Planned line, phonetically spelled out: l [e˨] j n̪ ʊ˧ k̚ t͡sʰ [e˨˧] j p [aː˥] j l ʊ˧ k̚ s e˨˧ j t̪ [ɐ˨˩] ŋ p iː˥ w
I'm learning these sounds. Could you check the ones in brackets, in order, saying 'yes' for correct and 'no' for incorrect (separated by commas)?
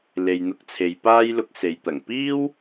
yes, yes, yes, yes